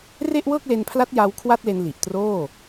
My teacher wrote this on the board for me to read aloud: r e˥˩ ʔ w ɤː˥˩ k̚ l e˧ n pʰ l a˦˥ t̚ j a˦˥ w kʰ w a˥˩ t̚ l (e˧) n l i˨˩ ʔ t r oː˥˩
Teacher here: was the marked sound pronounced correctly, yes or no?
yes